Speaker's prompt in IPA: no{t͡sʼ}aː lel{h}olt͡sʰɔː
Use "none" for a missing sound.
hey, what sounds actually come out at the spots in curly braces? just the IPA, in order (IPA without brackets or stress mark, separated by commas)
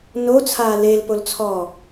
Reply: t͡sʰ, p